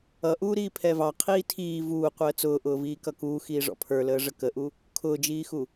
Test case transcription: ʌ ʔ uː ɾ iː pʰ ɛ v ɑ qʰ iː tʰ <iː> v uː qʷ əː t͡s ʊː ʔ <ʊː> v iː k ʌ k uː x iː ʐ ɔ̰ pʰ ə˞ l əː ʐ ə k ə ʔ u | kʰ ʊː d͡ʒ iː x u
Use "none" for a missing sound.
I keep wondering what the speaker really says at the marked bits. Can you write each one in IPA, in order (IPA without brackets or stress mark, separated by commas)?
iː, ʊː